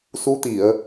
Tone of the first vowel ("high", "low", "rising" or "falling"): rising